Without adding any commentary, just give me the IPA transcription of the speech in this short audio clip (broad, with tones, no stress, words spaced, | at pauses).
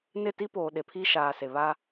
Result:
nɪ˦˨ti˦poː˨ ɗe˨pʰiː˦ʃaː˨se˨ βa˦